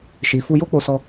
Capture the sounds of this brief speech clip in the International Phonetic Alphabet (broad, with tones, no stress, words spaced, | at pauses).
ʃi˨fu˧ jo˦k͡po˧sɔ˧